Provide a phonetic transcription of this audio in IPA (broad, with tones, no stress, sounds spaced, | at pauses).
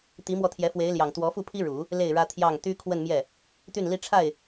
t̪ i˧˥ m w ɔ˧ t̪ʰ j ɛ˧˥ f w e˧˥ ɪ̯ l j ɑ˨˩ ŋ t̪ w ɔ˧˥ f u˥˩ pʰ i˥ ɻ u˨˩˦ | l e˥˩ ɪ̯ ɻ ä˥ t̪ʰ j ɑ˥˩ ŋ t̪ y˥ kʰ w ə˥˧ n m j ɛ˥˩ | t̪ y˥˩ n l i˥ ʈ͡ʂʰ a˥˩ ɪ̯